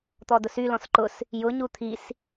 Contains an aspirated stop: yes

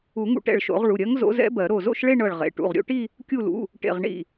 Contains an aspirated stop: no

